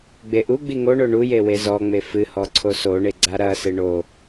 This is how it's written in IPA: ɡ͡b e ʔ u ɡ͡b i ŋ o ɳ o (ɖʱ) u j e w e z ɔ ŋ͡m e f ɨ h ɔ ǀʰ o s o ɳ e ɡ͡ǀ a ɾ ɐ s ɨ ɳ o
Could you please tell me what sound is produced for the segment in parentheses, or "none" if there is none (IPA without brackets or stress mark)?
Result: ɳ